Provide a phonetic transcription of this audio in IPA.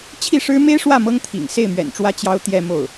t͡ɕʰ i˥˩ ʂ ɻ̩˥ m e˥ ɪ̯ ʂ w ä˥˩ m ɤ˥ ŋ t̪ʰ ḭ˨˩ ŋ s e˥˩ ɪ̯ m ɥ ɛ̰˨˩ n ʈ͡ʂ w ä˥ t͡ɕ j ɑ˥ ʊ̯ t̪ j ɛ˥˧ m o˥˩ ʊ̯

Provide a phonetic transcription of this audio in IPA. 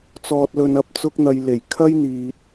t͡s ɔː˨ t̚ l ɵ˨ n ɐ˨˥ p̚ t͡s ʊ˥ k̚ n̪ ɐ˧ j l e˨˩ j kʰ ɐ˥ j n̪ iː˨ t̚

